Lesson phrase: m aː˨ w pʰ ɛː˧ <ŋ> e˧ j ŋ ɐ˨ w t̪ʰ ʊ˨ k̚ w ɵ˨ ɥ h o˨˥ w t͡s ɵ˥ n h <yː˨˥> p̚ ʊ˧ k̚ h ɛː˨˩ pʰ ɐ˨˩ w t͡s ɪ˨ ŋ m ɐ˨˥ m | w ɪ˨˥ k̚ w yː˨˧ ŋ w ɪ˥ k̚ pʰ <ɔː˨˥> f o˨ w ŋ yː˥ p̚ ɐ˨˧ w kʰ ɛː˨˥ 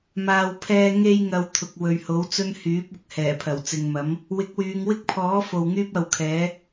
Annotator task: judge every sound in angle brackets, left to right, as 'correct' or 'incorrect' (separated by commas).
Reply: correct, correct, correct